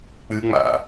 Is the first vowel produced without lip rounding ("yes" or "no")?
yes